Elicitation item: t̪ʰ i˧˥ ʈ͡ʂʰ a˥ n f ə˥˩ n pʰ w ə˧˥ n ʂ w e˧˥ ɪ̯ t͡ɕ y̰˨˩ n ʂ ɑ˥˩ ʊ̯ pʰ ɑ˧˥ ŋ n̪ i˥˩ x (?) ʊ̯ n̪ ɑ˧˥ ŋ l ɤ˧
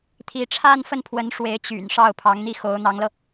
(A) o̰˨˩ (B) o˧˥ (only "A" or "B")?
B